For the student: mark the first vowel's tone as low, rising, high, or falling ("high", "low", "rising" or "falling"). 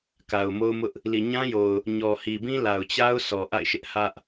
low